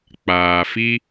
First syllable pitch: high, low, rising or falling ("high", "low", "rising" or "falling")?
low